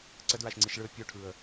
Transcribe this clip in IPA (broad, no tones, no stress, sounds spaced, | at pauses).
ǀ ə d ɹ a ʃ ŋ͡ǀ i ʃ ɭ ɯ ə̯ pʲ o ʈʰ ɯ ə̯